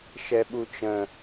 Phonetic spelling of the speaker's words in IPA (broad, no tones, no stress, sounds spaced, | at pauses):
ʃ ɛ ɓ u t͡ʃ ə̃